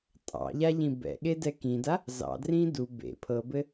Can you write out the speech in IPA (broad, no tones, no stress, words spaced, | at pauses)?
tʼɑ̰ʎaʎĩ bɛ̰ɠedɛ kĩda | zɑ̰drĩː du bḛ pʰɤbɘ